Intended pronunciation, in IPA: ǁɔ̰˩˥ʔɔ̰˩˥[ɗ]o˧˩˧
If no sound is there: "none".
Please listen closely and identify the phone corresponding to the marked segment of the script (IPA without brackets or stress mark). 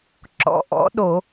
ɗ